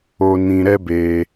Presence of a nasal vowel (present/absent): present